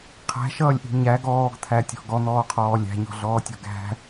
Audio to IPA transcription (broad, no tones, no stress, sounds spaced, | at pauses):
qʰ æ̤ ʃ ʌː lʲ ʔ i̤ ɲ æ ɡ ɔː ɡ t̪ʰ æ tʲ ɔ̤ ɡ ɔ n̪ ɔː qʰ ɔː lʲ æ̤ ɲ ɔ̤ ɮ ɔː tʲ ɔ̤ ɡ æ̤